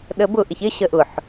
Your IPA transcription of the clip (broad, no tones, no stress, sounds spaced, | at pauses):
ɗ ə b ʊ ʔ ɪ ç ɪ ɕ ə ʔ ʊ ħ